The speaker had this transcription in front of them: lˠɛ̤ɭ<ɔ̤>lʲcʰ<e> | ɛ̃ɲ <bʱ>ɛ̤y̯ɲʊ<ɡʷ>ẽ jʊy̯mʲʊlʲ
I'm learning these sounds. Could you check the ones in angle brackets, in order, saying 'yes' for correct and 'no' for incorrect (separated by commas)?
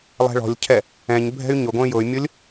yes, no, yes, yes